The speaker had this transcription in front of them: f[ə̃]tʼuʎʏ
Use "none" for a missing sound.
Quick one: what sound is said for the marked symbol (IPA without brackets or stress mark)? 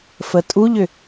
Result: ə